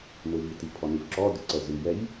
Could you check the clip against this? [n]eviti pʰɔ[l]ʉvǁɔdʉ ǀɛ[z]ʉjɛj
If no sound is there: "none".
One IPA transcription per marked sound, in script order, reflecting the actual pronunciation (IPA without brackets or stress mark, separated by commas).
n, n, z